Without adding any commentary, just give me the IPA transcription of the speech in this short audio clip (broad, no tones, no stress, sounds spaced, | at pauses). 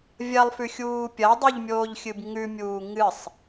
vʲ ɐ lˠ f ʉ xʲ uː pʲ ɐ dˤ ʉ ʎ mʲ oː ʎ xʲ ɨ b ŋ ʉ mʲ uː ŋ ɨ sˤ